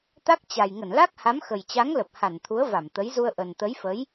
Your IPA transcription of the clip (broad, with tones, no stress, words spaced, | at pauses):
t̪a˦˥k̚t͡ɕa˨˩j ŋə˧˩nla˦˥k̚ha˨˦m xə˨˩jt͡ɕa˨˦ŋlə˨˩p̚ ha˧˩nt̪ʰu˨˦ə̯ va˧˩mt̪ə˨˦jzu˧ə̯ ʔə˨˩nt̪ə˨˦jfə˨˦j